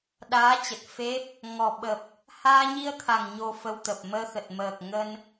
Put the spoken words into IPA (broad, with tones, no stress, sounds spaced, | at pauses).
ɗ aː˨˦ t͡ɕ ə˨˩ t̚ f e˦˥ p̚ | ŋ ɔ˨˩ ɓ ə˨˩ p̚ | h aː˧ ɲ i˧ ə̯ t̪ʰ a˨˩ ŋ ɲ o˧ f ə˧ w t̪ ə˨˩ p̚ m əː˧ x ə˨˩ t̚ m əː˨˩ k̚ ŋ ə˧ n